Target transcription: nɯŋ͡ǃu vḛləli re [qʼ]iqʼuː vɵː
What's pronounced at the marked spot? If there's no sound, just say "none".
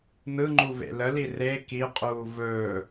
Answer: k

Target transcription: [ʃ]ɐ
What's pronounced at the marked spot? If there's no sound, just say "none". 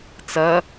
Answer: t͡s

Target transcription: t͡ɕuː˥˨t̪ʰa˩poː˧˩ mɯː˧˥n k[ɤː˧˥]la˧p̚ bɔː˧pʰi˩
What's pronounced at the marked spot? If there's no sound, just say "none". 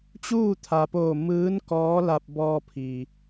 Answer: ɔː˧˥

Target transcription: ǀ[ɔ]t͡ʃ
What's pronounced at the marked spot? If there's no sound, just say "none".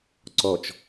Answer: ɔ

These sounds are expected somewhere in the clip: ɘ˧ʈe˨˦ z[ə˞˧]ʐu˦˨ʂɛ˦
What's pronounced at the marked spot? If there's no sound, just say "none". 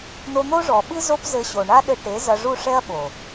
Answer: ɐ˧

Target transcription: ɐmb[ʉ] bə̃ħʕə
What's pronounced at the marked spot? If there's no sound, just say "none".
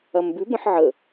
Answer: ʉ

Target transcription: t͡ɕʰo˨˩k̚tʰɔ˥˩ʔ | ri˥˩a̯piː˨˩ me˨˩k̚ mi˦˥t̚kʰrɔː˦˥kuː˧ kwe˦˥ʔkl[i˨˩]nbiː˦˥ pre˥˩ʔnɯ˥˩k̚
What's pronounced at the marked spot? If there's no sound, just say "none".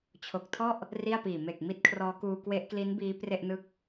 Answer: i˦˥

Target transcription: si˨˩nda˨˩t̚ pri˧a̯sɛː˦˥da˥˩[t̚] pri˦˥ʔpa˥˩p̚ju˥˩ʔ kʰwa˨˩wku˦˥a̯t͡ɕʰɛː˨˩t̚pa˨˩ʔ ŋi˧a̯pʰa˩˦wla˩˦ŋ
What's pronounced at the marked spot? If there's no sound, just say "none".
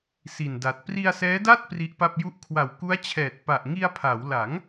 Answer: t̚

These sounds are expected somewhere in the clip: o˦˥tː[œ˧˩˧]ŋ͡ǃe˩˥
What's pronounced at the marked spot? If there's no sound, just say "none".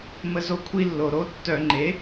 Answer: œ˧˩˧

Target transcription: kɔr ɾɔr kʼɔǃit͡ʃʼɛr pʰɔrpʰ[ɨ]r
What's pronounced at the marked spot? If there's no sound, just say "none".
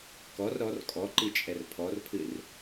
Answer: ɨ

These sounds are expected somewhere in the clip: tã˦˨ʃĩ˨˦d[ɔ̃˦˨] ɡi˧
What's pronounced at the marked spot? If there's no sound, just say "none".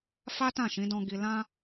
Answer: ɔ̃˧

